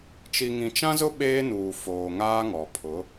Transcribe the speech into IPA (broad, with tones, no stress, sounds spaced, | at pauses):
t͡ʃ i˨ ŋ ĩ˨ t͡ʃ ã˦ z ʊ˦ ɓ eː˦ n uː˨ f oː˨ ŋ aː˦ ŋ ɔ˨ pʰ ʊ˨˦